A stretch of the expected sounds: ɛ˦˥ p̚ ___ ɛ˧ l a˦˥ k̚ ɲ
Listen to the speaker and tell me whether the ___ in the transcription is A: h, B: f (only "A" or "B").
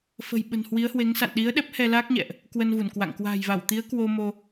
A